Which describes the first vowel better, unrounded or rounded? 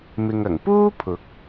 unrounded